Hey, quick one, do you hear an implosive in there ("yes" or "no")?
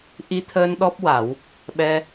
yes